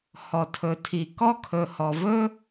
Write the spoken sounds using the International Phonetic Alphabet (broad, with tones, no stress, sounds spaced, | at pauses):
h ɔ˩ tʰ ɵ˩ tʰ i˩ k ɔ˥ kʰ ɵ˩ h ɔ˩ v ɵ˥